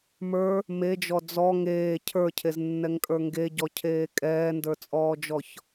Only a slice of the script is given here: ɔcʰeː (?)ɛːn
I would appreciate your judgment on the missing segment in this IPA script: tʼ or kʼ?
kʼ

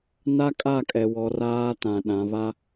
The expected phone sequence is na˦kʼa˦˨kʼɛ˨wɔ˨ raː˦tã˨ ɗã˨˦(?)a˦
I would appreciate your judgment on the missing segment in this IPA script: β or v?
β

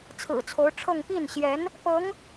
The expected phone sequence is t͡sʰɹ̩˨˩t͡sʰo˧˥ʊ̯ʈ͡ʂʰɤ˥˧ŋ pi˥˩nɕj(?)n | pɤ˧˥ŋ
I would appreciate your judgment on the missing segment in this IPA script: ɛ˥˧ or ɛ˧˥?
ɛ˧˥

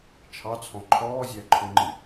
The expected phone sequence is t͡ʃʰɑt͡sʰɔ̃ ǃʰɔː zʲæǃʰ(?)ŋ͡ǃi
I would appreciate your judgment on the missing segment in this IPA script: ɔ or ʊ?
ʊ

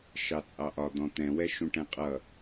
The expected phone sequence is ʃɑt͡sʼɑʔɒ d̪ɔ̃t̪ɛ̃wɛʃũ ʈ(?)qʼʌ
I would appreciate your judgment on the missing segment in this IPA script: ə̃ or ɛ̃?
ɛ̃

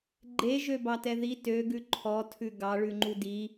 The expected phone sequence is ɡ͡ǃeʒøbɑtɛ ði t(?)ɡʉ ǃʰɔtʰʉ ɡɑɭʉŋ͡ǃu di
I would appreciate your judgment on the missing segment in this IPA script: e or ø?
ø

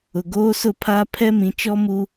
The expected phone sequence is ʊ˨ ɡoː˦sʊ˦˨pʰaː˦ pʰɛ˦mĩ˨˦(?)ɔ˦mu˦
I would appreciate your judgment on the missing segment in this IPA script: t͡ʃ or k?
t͡ʃ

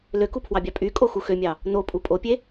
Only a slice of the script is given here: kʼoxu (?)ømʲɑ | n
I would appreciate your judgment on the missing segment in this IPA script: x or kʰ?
x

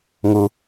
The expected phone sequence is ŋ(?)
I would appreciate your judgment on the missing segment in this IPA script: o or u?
u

